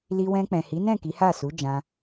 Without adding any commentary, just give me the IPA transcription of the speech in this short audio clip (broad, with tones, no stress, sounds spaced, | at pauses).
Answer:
l i˧ w ɛ̃˧ k͡p ɛ̃˨ h i˨˦ n ɛ̃˦˨ k i˨˦ h a˦˨ s u˨˦ d͡ʒ ã˧